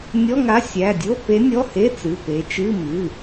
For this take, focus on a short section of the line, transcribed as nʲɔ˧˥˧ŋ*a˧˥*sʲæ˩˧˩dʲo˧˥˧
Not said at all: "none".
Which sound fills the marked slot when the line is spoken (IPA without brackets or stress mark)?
a˧˥